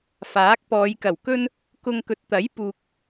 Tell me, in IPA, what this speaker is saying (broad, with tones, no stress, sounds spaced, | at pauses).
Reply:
f aː˨˥ k̚ p ɔː˨˧ j k ɐ˨˩ w k ɵ˥ n | k ʊ˧ ŋ k ɵ˨ t̚ t̪ ɐ˨˥ j p uː˨ k̚